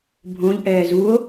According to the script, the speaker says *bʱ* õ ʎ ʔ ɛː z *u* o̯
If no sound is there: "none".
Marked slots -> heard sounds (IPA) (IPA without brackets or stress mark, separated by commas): bʱ, u